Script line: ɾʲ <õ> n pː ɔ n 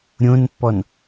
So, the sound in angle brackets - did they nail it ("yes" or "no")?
yes